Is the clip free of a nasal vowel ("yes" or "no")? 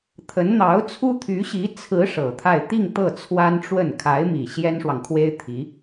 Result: yes